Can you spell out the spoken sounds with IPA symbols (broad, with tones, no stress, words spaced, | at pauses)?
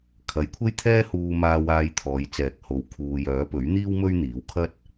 kʰɐ˨˧jkʷʰe˥jt̪ʰɛː˥huː˧ maː˧waː˧j t̪ʰɔː˨˧jt͡sɛː˨˥k̚ho˨w kʰuː˨jœː˨˥ pɵ˨˥ɥn̪iː˥w mɵ˥ɥn̪iː˨˥wkʰɐ˥t̚